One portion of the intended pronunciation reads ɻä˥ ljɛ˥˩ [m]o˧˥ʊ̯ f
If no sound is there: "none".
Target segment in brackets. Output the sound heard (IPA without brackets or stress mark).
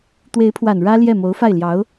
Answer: m